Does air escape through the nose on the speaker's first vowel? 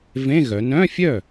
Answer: yes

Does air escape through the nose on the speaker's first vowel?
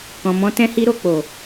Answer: yes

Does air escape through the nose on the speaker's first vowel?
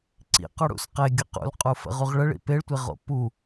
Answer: no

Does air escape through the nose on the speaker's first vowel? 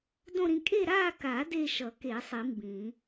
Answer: yes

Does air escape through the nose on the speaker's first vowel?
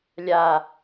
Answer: no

